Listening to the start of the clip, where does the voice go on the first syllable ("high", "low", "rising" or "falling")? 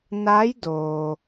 rising